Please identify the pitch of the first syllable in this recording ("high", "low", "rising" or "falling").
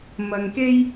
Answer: low